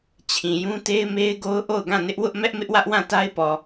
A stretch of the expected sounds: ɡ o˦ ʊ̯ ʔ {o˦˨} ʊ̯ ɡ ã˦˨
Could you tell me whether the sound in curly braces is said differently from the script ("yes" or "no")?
no